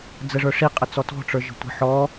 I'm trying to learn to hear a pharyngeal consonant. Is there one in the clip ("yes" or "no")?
yes